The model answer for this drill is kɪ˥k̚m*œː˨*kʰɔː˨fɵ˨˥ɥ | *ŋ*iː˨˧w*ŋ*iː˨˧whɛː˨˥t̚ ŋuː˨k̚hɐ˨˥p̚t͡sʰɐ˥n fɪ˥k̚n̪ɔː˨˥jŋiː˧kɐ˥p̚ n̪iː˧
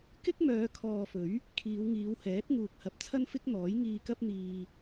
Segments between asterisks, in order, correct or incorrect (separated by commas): incorrect, incorrect, correct